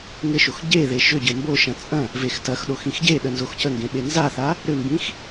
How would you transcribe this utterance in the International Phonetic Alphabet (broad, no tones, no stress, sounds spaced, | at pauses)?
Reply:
ŋ ɘ ʃ o x ɟ e ð e ʃ ʏ ɟ ɘ m b o ʃ ɐ̃ t͡sʼ ɐ̃ | v e x t ɐ x ɗ o x ĩ x ɟ e ɗ ə n z o x c ə ŋ ɡ ẽ ɓ e n z a θ a | ɾ ʏ m b ĩ x